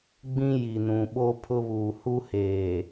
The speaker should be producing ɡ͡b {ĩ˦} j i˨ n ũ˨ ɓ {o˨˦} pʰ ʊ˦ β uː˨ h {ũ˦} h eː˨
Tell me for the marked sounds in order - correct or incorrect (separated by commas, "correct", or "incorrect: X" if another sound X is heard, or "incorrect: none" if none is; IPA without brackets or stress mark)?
correct, incorrect: o˦, incorrect: u˦